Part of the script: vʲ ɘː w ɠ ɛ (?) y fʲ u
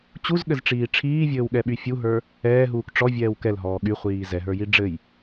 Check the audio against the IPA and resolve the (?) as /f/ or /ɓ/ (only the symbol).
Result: ɓ